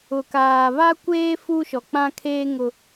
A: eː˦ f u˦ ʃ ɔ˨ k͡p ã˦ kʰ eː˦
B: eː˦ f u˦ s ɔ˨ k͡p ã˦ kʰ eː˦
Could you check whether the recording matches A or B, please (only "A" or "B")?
A